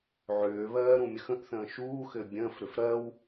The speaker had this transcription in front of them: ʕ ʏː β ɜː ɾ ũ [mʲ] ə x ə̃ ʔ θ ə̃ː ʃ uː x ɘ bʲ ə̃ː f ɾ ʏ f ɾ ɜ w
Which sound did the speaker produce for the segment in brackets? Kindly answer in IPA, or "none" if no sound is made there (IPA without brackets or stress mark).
mʲ